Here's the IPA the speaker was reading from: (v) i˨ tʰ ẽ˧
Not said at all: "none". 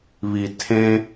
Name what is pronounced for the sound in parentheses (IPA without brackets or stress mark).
β